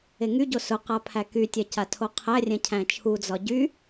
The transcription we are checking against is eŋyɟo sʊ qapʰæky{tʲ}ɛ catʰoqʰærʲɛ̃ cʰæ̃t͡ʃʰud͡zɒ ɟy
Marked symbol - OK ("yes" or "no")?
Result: yes